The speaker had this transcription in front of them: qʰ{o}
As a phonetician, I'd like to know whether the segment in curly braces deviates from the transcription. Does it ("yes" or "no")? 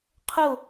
no